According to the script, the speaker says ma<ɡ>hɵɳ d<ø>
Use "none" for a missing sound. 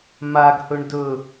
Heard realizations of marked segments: ɡ, ɵ

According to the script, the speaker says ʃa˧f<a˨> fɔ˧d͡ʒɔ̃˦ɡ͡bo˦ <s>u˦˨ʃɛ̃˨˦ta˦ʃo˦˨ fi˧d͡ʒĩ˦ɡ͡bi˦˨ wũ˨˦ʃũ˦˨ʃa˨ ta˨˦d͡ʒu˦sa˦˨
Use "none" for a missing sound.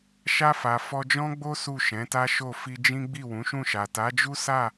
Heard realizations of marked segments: a˨, s

